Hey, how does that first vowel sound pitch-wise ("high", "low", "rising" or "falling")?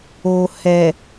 low